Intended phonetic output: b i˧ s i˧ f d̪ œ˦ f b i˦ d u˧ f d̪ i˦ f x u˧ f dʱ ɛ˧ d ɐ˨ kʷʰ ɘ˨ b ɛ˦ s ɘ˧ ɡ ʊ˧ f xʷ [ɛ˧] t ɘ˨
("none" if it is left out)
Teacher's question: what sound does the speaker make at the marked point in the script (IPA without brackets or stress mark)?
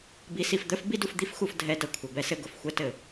ɛ˧